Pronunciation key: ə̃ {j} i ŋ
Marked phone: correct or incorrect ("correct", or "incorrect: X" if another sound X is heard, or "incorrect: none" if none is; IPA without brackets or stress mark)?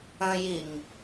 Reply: correct